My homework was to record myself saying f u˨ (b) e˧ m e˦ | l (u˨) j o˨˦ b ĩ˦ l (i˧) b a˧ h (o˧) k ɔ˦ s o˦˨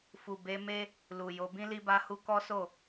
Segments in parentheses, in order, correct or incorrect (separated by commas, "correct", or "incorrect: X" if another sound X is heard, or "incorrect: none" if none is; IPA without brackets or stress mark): correct, correct, correct, incorrect: u˧